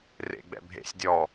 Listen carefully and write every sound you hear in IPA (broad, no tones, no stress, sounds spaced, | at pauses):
r ḛ ɡ͡b ɛ̰ bʱ ḛ sʲ dʲ ɔ